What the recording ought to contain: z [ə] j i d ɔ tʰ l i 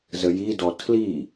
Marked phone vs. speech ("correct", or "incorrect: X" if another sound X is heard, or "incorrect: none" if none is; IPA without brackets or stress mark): correct